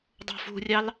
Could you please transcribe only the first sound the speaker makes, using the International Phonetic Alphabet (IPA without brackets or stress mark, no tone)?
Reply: dˤ